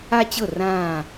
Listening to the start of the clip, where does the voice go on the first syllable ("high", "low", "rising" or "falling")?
high